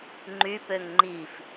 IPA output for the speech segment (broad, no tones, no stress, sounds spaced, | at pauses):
ŋ͡ǃ y p ø ŋ ŋ͡ǃ i f